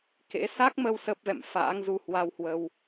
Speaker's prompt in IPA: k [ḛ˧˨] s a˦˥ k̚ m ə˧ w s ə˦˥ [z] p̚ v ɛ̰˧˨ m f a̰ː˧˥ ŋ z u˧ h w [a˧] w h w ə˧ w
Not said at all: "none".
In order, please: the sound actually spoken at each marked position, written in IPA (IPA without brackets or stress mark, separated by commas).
ḛ˧˥, none, a˧